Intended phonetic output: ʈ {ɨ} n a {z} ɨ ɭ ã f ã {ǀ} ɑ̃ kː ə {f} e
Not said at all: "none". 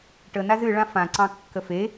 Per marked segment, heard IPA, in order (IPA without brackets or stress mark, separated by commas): ə, z, ǀ, f